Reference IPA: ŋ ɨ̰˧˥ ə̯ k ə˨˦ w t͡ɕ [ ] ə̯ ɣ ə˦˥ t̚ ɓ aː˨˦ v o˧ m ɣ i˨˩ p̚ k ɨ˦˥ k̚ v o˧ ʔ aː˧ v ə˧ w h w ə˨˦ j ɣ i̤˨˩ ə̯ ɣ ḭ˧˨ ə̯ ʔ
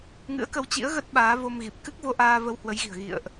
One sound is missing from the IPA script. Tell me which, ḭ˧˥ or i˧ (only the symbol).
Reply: ḭ˧˥